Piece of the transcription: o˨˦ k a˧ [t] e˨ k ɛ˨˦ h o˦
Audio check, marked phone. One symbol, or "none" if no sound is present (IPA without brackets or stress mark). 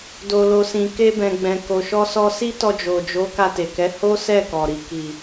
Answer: t